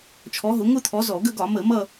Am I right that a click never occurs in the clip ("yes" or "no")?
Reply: yes